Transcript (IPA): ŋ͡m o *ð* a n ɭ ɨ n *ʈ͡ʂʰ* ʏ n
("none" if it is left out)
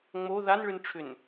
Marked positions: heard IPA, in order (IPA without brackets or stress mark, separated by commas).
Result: ð, ʈ͡ʂʰ